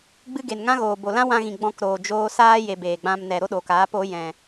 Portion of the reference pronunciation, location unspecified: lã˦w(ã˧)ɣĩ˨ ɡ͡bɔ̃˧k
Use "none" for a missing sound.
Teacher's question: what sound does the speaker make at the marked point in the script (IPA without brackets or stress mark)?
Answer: ã˧